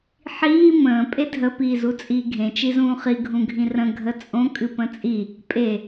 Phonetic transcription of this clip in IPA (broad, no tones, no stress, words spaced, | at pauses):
ħiː mə̃ː pʼedʱə piːzut͡sʼiːɡʱẽ t͡ʃizũːχi ɡʱũɡʱĩrə̃ ɡʱət͡sʼõ kʼɨpə̃t͡sʼi | pʼe